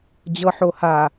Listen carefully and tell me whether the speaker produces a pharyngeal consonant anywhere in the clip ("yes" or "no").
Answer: yes